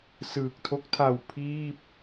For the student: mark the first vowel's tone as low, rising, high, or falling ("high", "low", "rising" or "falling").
low